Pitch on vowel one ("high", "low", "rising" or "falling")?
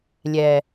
low